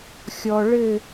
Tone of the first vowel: low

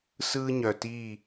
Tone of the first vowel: high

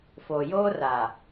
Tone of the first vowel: low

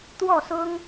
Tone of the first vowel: falling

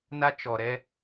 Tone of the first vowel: high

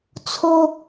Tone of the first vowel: high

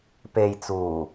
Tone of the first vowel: low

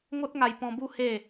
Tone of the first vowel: high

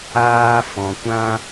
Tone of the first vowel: high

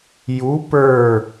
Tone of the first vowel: rising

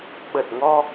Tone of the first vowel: low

